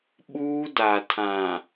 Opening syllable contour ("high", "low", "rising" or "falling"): high